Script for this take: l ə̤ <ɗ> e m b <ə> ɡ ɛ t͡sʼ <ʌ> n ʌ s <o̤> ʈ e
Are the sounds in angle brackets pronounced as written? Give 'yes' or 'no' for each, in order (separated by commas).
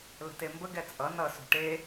no, yes, yes, yes